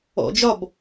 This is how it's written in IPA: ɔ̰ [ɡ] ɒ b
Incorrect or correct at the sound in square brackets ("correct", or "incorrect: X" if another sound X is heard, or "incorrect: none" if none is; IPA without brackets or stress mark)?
incorrect: d͡ʒ